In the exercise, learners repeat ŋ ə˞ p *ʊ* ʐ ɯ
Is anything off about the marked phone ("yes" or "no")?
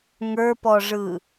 yes